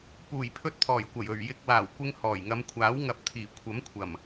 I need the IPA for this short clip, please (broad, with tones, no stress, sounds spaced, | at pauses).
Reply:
p uː˨˩ j pʰ ɵ˧ t̚ t̪ʰ ɔː˨˩ j kʷ ɐ˨˩ j ɵ˨˩ ɥ j ɪ˨ k̚ w aː˨˩ w kʷ ɪ˧ ŋ h ɔː˨˩ j ŋ ɐ˨˧ m kʷʰ aː˨˥ w ŋ ɐ˨˥ p̚ t̪ʰ iː˨˩ kʷʰ ɐ˨˥ m kʷʰ ɐ˨˩ m